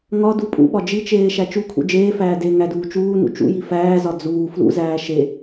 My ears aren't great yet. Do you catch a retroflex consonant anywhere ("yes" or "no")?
no